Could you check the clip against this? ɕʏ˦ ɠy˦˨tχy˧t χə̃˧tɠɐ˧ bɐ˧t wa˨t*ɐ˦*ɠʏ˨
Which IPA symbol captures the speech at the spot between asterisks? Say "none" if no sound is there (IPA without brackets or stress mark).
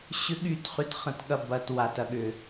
ɐ˧